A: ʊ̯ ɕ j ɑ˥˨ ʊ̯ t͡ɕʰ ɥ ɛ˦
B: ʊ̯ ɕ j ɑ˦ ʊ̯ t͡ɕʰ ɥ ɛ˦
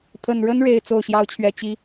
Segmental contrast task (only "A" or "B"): B